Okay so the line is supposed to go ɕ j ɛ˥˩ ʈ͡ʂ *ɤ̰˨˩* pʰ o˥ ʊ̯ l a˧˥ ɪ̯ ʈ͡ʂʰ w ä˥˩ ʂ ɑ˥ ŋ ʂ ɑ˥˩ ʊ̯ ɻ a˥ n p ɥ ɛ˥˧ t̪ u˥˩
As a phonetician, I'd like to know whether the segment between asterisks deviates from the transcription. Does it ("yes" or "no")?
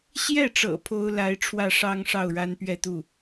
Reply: no